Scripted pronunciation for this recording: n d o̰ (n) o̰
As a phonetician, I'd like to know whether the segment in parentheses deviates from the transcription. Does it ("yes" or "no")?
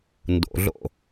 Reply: yes